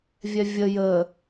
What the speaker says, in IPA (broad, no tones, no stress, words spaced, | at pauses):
vʲɛvʲə jə